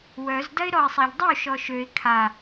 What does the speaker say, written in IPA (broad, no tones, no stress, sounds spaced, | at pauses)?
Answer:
w œ z d ɐ ɪ̯ ɾ ɔ ɪ̯ sˤ a ʎ dˤ y ʃ ɔ ʃ ø ɪ̯ kʰ a